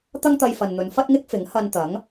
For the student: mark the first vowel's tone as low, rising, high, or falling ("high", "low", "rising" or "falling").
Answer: high